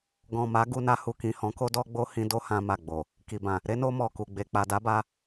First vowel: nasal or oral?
nasal